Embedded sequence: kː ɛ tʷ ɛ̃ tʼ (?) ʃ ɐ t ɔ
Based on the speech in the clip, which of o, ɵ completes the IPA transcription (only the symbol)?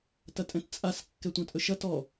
ɵ